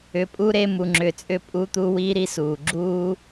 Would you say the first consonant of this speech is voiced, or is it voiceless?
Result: voiceless